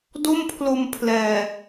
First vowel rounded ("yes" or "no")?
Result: yes